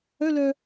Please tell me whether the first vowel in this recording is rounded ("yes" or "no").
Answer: yes